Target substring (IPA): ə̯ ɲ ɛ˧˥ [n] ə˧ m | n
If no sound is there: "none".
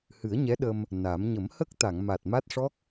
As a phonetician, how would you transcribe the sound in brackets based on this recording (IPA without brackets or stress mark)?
ɗ